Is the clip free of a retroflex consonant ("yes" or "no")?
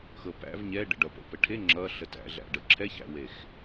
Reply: no